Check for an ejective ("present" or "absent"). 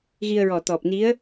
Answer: absent